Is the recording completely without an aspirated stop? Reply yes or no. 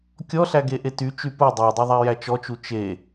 yes